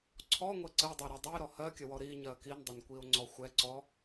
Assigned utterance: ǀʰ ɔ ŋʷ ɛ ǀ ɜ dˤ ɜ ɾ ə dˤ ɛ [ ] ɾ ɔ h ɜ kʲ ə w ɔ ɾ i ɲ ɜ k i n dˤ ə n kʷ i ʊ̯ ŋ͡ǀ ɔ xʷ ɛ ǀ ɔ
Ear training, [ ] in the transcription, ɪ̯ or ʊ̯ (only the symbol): ɪ̯